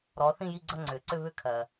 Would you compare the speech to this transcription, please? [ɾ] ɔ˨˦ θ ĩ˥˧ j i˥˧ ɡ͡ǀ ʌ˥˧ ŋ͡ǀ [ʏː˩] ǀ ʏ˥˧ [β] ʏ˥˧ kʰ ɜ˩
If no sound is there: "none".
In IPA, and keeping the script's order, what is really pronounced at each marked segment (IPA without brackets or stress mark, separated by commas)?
ɾ, ʏː˩, β